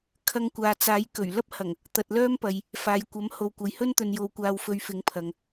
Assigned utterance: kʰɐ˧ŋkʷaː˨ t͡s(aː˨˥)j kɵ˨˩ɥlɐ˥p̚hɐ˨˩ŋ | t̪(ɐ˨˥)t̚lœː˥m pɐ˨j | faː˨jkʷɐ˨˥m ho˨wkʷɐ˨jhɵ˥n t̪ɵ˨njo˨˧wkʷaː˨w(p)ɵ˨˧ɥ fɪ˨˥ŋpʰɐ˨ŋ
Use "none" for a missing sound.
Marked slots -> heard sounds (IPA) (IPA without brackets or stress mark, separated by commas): aː˨˥, ɐ˨, f